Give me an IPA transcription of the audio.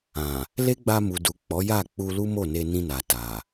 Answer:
ã˨ | l e˦ ɡ͡b a˧ m u˨ d u˨ k͡p ɔ˨˦ j a˦˨ k͡p u˧ l u˦ m o˦˨ n e˧ n ĩ˧ n a˨ t a˨

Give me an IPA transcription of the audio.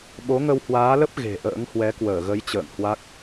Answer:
ɓ o˨˦ ŋ ə˧ w h w aː˨˦ l ə˦˥ p̚ ɣ e̤˨˩ ʔ ə̰ː˧˥ ŋ h w ɛ˨˦ k w əː˧˩ ɣ ə˨˦ j t͡ɕ ə̰ː˧˨ ŋ h w a˦˥ k̚

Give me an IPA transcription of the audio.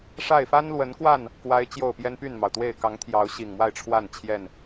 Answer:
ʂ a˥˨ ɪ̯ f a˦ n l w ə˨˦ n k w a˥˨ n | k w a˦ ɪ̯ t͡ɕ j o˥˨ ʊ̯ p j ɛ˦ n p y˥˨ n m ɑ˩ ʊ̯ t̪ w e˥˨ ɪ̯ k ɑ˨˦ ŋ t̪ʰ j ɑ˨˦ ʊ̯ ɕ i˨˩ ŋ m w a˥˨ ɪ̯ ʈ͡ʂʰ w a˥˨ n t͡ɕʰ j ɛ˥˨ n

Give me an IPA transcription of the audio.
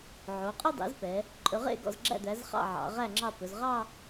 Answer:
ʕ o˩˧ qʼ ʉ˥˧ dˤ ḛ˩˥ z p ɛ˩˧ | ǃʼ ɵ˩˧ ʁ ḛ˥˩ ɡ ɔ̰˧˩ z ɡ͡ǁ æ̰˥˩ d̪ æ˩˥ z χ ɑ̰˥˩ ʕ ɑ̰˩˧ ʁ æ˥˩ ŋ͡ǁ ɑ˥˩ p ɵ˩˧ z ʁ ɑ˥˧

